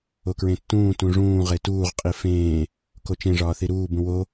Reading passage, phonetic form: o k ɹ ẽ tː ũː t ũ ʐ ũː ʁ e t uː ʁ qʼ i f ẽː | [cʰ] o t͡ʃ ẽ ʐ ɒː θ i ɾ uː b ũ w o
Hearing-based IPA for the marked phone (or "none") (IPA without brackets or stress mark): k